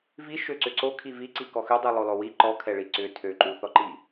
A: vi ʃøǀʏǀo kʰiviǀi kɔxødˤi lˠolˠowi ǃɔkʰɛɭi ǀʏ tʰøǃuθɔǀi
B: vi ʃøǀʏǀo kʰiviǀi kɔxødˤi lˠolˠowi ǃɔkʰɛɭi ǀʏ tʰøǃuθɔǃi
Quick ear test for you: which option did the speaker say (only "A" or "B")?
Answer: B